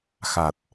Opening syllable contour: low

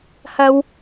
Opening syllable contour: low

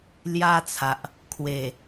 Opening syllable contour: high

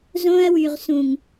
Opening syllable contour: high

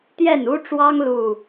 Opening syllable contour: falling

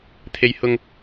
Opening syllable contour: high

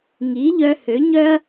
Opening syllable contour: rising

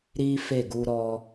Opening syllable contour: high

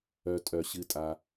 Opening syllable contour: low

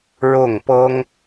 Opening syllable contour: falling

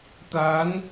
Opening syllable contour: rising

